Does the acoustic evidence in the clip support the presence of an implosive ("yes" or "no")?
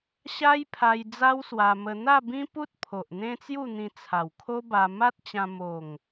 no